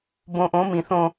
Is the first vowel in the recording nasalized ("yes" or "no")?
yes